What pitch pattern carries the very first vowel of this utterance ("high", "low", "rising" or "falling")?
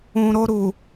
low